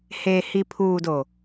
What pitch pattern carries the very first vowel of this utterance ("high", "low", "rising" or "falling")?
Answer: low